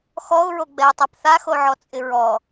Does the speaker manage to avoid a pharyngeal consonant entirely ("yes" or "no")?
no